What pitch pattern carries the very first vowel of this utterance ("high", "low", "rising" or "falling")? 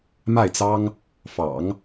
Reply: falling